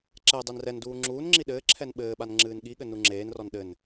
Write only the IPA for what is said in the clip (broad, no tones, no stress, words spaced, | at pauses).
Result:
ǁɛ dˤenrɛnduː ŋ͡ǁuːnŋ͡ǁi ɗɘːǁʰɛn ɓɘːɓan ŋ͡ǁɨːnɠiɠɘ nuŋ͡ǁeːnrɔn ɗɘn